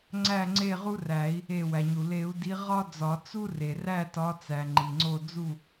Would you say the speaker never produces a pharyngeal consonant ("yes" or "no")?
yes